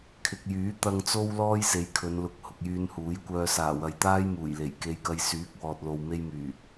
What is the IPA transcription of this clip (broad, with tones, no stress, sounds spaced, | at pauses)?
kʰ ɪ˨ k̚ j yː˨˥ t̪ ɐ˨ ŋ t͡s o˧ w l ɔː˥ j s e˨˧ j kʰ ɵ˨˧ n l ʊ˨˥ k̚ h ʊ˨ k̚ j yː˧ n h uː˨˥ j kʷ œː˧ s aː˨˩ w ɐ˨ j t̪ aː˥ j m uː˨˩ j l e˨˩ j k e˧ j k ɐ˧ j s yː˨˥ k̚ w ɔː˨ t̚ l o˨ w m e˧ j m yː˨˩